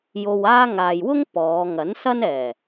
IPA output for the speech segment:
j o˧ w aː˥ ŋ aː˨ j w ʊ˥ ŋ p ɔː˨˧ ŋ ɐ˨˥ n s ɐ˥ n ɛː˨˩

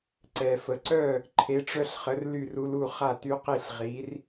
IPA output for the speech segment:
ǀ ɛ˨ f ə˨ ǀ œ˥˨ | ǃʰ e˨˥ ʈ͡ʂ œ˦ ɬ χ ə˨˥ r l y˥˨ r u˦ l u˥˨ χ a˥˨ t y˦ q i˥˨ ɬ ʁ i˨˥ r

